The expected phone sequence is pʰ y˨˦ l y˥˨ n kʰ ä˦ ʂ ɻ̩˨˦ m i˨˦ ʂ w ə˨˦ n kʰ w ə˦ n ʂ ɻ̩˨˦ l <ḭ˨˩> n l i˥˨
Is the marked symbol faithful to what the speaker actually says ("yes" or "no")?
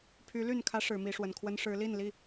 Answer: no